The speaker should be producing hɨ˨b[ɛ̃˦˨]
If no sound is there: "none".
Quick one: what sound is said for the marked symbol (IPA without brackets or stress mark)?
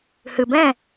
ɛ̃˦˨